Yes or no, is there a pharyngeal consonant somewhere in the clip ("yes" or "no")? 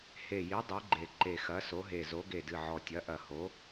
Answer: yes